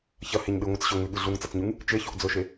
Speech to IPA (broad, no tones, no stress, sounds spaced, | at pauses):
ç ɐ h e ɲ ɗ ɨ ŋʷ ɨ t͡s ɕ ɵ ŋ ʉ ɠ ɨ ɮ u ŋ t͡s ɐ t͡s ɲ ʉ ŋ | t͡ʃ e ç o ʔ d͡z ɵ ʃ e